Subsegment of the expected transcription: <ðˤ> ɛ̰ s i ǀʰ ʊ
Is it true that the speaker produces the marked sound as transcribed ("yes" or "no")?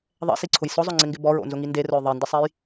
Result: yes